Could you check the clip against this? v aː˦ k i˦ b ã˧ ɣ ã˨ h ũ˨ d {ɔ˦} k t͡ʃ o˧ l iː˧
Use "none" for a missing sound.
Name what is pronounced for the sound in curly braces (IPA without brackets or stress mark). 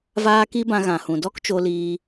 ɔ˦